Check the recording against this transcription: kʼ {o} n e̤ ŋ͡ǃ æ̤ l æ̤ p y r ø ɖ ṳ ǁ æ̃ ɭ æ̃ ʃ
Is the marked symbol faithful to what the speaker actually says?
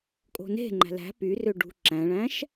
no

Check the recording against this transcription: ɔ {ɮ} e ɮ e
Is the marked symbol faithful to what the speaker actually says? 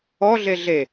yes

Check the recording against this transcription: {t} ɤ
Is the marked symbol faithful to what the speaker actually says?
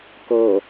no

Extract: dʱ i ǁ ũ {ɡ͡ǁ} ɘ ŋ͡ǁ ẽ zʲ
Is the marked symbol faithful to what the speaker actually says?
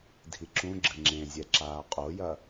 yes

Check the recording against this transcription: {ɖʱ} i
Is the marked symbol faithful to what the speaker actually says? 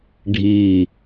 yes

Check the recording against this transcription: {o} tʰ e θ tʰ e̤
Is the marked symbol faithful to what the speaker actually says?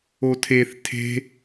yes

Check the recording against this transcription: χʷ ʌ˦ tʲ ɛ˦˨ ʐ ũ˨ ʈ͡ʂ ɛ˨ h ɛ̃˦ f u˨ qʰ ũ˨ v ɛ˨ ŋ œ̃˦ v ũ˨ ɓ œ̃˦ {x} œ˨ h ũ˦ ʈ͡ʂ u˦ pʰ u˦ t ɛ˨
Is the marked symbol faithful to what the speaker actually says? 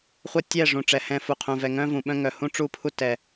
no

